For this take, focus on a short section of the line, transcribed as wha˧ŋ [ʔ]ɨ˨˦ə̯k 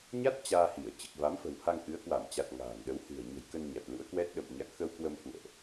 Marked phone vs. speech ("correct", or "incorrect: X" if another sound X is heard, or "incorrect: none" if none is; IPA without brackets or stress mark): correct